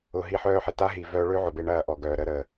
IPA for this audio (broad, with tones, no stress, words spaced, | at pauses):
ʊ˧ɦi˦ħœː˦ħɪ˨ ta˦ɦi˨vœː˧ɭø˦ ʕʊ˨be˧ɳɐː˧ ʔɔ˨ɡœː˨ɾə˦ ɾə˨